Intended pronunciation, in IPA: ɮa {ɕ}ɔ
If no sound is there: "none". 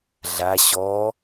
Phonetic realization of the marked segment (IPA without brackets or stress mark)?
ɕ